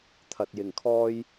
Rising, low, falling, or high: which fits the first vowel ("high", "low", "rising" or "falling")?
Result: low